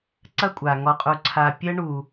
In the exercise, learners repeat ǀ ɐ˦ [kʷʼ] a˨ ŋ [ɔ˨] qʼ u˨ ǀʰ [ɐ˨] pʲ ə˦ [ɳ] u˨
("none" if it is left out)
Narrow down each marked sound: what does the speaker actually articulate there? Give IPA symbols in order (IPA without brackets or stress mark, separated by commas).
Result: kʷʼ, ɔ˨, a˨, ɳ